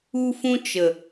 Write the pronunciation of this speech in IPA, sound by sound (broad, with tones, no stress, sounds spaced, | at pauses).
u˦ f ũ˦ t͡ʃ ə˨